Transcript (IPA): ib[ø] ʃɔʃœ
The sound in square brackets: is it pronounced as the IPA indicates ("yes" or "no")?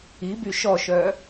no